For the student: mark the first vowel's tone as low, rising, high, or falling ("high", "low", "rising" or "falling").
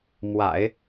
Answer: low